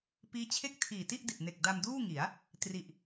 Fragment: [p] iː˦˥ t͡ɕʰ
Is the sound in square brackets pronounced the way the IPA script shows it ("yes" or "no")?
yes